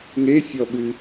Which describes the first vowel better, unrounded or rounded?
unrounded